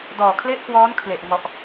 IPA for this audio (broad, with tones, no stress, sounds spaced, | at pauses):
d ɔː˨˩ kʰ l e˦˥ ʔ k w ɔː˦˥ n kʰ l e˨˩ ʔ ŋ ɔ˨˩ ʔ